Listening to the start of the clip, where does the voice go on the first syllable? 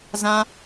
high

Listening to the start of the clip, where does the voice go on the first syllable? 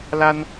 high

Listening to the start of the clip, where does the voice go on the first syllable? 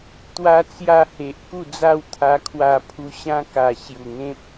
high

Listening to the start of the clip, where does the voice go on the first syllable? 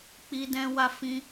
high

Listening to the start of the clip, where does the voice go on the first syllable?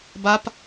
high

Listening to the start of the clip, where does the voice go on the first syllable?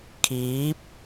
rising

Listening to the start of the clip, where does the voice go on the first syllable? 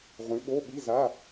rising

